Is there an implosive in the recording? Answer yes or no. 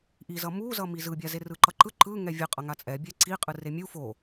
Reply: no